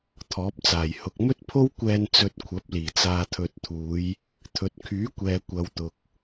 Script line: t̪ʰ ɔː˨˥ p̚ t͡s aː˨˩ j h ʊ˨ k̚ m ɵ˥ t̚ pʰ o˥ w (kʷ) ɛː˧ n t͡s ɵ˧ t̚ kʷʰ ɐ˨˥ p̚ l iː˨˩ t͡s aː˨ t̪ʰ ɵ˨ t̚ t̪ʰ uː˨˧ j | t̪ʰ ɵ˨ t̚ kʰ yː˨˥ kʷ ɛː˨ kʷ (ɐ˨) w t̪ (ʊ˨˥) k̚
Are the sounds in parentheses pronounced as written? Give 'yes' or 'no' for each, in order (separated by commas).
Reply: yes, no, no